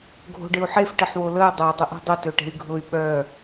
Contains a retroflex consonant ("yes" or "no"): yes